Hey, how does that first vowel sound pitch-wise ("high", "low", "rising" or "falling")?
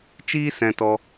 high